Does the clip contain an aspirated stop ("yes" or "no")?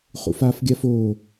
no